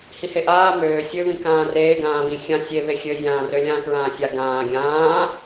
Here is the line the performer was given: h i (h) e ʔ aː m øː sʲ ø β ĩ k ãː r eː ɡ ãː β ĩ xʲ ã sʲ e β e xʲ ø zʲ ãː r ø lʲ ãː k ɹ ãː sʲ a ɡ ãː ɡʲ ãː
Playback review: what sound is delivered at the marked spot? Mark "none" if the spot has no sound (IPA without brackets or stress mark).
h